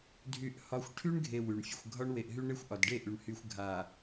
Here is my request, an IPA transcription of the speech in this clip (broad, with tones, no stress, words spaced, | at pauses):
dʱy˦ʔhɒ˦xʷ ʈʰy˦ɳɡʱe˨ wy˨ɳ fʲə˨xʷɡʱɒ˦ɳwe˨ʔɦy˦ ɳe˦xʷʔɒ˨dɖe˦˨ʔy˨ɳ hy˨xʷ ɡʱa˨